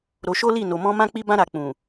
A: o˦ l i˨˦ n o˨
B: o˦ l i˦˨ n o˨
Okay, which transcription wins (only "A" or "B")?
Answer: B